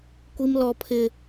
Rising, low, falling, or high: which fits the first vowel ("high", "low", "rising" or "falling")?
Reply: high